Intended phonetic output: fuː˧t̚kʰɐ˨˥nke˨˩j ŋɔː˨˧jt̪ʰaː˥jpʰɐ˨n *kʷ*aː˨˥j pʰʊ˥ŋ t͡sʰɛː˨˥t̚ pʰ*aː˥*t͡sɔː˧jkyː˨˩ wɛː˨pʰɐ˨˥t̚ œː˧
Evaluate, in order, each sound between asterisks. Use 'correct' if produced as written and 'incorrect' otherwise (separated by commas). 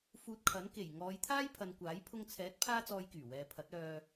correct, correct